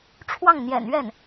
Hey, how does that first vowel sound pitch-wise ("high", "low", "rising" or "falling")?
falling